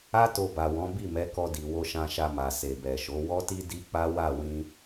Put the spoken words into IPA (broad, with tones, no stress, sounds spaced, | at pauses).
a˦ t o˧ b a˨ w ɔ̃˨˦ b i˦˨ m ɛ˨˦ k ɔ˧ d i˨ w o˧ ʃ ã˧ ʃ a˧ m a˨ s e˨ b ɛ˨ ʃ o˨˦ w ɔ˦ t i˦ d i˦ k͡p a˦ w a˦˨ w ĩ˧